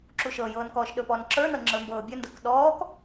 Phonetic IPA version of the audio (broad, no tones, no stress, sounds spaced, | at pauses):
ǁ u ʃ ɤ j ɤː n k ɔː ʃ ɗ ɵ p ɔː n ǁ ə˞ n ɤ ŋ͡ǁ ə˞ m b ɤː bʲ ɵ n d ɤ k ɗ ɔː k